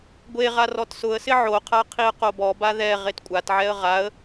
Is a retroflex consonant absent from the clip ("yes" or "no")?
yes